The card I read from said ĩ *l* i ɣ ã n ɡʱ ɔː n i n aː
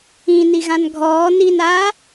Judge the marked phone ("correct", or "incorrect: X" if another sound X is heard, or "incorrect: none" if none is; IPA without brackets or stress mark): incorrect: n